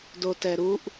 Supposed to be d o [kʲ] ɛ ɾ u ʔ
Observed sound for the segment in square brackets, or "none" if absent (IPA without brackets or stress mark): t